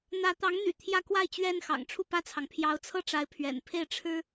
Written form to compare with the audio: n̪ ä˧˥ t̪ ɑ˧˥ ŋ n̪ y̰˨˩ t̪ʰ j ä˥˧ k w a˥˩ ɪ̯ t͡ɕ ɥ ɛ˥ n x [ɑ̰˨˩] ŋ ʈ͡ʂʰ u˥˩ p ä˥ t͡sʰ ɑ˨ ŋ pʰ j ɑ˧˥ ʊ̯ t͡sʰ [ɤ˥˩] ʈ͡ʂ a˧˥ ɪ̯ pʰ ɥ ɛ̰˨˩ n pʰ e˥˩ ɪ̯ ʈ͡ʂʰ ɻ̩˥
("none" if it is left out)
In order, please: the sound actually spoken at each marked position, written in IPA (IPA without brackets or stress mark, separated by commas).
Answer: ɑ̰˨˩, ɤ˥˩